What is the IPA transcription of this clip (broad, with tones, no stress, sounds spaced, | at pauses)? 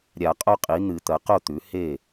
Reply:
ɾʲ a˨˩˦ qʼ o˦ qʼ i˩˥ n̪ ɨ˨˩˦ t̪ ɐ˩˥ q o˥˨ t̪ ʉ˩˥ h e˥˨